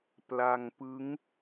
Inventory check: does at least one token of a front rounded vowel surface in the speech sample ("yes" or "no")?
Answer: no